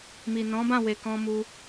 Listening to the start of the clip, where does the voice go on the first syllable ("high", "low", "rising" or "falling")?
low